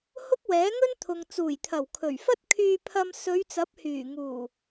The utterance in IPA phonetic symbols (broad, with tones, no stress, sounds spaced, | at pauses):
h ʊ˥ k̚ w ɛː˨˥ ŋ ɵ˥ n t̪ʰ ʊ˨ ŋ t͡s uː˨˩ j t̪ʰ ɐ˨˩ w kʰ ɵ˨˩ ɥ f ɐ˥ t̚ kʰ yː˧ pʰ ɐ˧ m s ɵ˨˧ ɥ t͡s ɐ˨˥ p̚ h yː˨˩ ŋ uː˨˩